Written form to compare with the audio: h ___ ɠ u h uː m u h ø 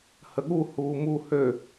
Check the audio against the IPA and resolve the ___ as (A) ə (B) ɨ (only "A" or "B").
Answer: A